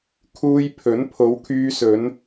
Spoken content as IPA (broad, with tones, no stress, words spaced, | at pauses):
kʰuː˧jpʰɵ˨˥n pʰo˨˧wkʰyː˧sɵ˨˧n